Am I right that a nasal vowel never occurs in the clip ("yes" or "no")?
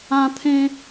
no